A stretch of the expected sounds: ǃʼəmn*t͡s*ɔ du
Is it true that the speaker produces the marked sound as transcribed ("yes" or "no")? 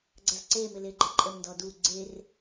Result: no